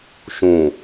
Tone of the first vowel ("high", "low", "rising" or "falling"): low